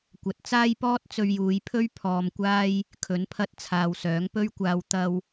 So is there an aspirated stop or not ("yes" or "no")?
yes